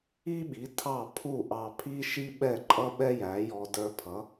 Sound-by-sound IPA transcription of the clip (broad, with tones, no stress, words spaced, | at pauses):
i˥ɓi˩˥ tʰɑ˥˩pʰu˥˩ ʔɑ˧ pʰi˥ʃi˥ ɓɛ˥˩ǃʼʌ˥ɓɛ˥ jæ˩˥jɔ˧ də˞˧pʰʌ˩˥